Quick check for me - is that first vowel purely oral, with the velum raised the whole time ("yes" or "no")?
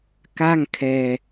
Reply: yes